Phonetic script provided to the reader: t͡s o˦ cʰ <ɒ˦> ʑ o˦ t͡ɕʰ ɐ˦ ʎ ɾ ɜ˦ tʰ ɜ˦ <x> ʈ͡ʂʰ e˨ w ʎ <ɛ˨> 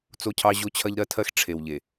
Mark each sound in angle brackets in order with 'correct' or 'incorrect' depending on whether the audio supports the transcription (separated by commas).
incorrect, correct, incorrect